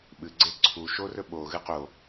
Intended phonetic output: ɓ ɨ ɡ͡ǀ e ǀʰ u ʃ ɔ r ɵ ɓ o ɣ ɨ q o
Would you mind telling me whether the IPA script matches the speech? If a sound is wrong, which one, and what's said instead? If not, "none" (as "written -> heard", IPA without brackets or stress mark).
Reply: ɔ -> o